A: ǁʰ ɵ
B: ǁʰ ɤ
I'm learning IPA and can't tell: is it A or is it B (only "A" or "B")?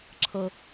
B